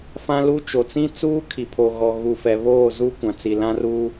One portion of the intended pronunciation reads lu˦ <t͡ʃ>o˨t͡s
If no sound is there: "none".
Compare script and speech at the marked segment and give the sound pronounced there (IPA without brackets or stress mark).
t͡ʃ